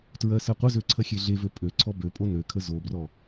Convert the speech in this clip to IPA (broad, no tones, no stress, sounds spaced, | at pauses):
t ɹ ɜ s ɜ qʷ ə z ø ǀʰ ɐ xʲ e ɮ e v ø pʼ ø ǀʰ ɔ b ø pʼ o n ø kʰ ə z o b r ɔ